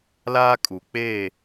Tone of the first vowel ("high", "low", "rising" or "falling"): high